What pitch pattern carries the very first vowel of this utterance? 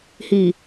low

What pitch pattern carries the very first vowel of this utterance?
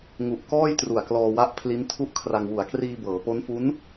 low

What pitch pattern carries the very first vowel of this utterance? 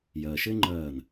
low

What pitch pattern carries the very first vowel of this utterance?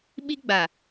high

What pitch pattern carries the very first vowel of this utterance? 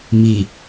low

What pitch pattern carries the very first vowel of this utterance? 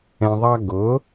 low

